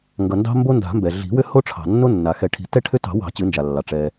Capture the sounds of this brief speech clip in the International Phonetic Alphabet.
ŋ ɡ ʌ˩ n d ɑ̤˦ m b o˦ n d a̤˨˩˦ m b ɛ˩ ɮ i̤˨˩˦ w ʏ˦ h o˦ ʈ͡ʂʰ ɑ̤˩ nː o˦ nː a˩ x ɛ˨˩˦ ʈʰ i̤˨˩˦ t ɛ˦ ʈʰ ʏ˦ t ɑ̤˨˩˦ w ɑ̤˨˩˦ t͡ɕ ɨ˨˩˦ n d͡ʒ a˩ lː ɑ˩ ʈ͡ʂ ɛ˩

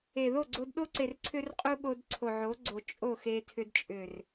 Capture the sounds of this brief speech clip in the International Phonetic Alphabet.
e˨ ð o˦˨ ɡ͡ǀ o˧ d ɗ o˦ ǀ e˨ r ǀʰ ʏ˦ r qʼ u˦ ɠ o˧ d ǀʰ o˨ ʕ o˨˦ ɡ͡ǀ o˨ t͡ʃʼ o˦˨ x e˧ tʰ ʏ˧ d t͡ʃʼ ʏ˨ r

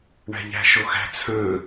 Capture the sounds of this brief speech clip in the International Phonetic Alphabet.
ɳ æ̤ ʎ æ̤ ʃ o x æ̤ t͡sʰ œ̃

